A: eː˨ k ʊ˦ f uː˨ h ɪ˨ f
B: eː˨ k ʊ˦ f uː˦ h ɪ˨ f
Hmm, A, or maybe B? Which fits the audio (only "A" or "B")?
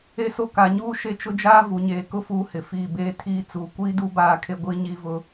B